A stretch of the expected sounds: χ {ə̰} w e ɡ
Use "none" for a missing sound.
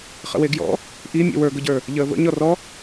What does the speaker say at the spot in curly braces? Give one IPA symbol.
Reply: ə̰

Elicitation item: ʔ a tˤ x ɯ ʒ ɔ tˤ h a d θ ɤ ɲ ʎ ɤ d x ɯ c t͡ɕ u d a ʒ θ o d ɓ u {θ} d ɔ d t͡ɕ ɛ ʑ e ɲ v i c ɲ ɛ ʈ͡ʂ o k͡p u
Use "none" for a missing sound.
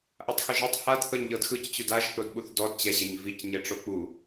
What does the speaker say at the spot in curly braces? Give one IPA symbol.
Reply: θ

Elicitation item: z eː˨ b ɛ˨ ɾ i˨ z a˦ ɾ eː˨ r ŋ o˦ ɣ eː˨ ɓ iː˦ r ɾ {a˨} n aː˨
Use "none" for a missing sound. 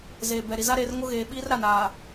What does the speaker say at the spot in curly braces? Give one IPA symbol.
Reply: a˨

